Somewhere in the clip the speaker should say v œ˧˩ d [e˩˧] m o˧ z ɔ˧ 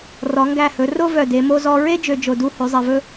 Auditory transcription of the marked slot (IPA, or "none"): e˩˧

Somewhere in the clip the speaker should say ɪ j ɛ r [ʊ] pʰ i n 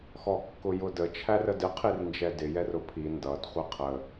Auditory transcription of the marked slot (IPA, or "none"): ʊ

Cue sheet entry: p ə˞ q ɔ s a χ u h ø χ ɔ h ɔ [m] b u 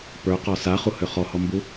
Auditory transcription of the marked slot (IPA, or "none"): m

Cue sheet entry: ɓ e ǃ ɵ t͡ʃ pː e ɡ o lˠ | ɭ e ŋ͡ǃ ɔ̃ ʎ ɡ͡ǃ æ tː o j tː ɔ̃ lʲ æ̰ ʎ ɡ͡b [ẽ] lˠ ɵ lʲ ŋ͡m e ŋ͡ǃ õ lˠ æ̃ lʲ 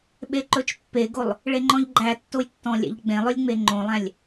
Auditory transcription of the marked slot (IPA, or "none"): ẽ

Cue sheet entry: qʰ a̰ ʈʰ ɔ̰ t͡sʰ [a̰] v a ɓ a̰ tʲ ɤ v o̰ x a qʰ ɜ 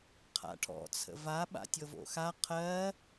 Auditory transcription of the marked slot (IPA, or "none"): ə̰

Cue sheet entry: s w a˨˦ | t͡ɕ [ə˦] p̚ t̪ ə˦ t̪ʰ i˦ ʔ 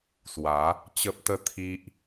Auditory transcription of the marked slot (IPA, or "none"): ə˦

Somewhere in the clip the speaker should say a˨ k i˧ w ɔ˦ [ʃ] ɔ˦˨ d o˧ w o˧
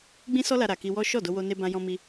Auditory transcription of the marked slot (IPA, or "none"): ʃ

